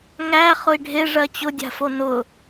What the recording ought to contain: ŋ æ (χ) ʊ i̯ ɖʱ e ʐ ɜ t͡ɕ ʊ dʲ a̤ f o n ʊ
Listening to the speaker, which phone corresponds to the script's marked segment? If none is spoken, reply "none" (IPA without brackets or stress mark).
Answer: χ